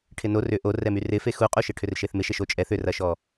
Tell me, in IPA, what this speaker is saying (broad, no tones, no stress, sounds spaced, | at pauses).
ʈʰ ɪ n o r ʏ ʔ o r ɛ m y r ɪ f e x u qʼ u ʃ ɪ ʈʰ ʏ r ʃ e θ m ɪ ʃ e ʃ o t͡ʃʼ ɛ θ ʏ r ɐ ʃ ɔ